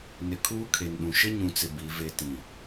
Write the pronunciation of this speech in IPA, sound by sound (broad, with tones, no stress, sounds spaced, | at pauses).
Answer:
n ɪ˨ kʰ uː˦ kʰ e˨ n ɗ ũ˨ ʃ ɪ˦ ɲ ũ˨ t͡s ɪ˨ b i˨˦ v e˦ t ĩ˦˨